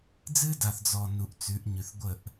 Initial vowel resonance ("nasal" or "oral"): oral